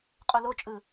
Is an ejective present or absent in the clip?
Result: present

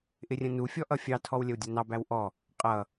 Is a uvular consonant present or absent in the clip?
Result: present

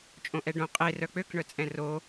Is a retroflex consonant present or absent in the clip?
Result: present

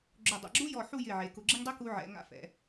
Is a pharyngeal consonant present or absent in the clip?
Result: present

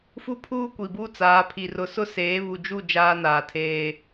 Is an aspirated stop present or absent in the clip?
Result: present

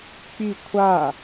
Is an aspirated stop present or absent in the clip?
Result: present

